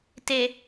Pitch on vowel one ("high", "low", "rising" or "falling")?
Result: low